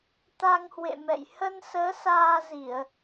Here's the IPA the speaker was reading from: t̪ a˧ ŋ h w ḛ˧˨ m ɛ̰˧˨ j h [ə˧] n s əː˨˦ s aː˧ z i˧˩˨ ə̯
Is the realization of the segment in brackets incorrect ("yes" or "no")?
no